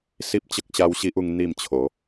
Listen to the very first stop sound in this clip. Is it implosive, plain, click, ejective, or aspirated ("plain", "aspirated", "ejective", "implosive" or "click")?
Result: plain